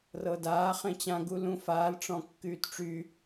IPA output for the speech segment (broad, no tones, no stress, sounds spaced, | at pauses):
r ɤ d aː χ ẽ t͡ɕ ã ɡ u l ũ f aː l ʈ͡ʂ ɔ̃ kː yː t ʈ͡ʂ y